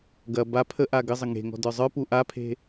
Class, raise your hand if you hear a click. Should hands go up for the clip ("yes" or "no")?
no